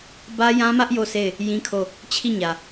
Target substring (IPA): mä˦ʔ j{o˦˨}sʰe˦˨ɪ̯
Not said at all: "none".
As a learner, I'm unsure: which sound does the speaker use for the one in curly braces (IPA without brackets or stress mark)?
o˦˨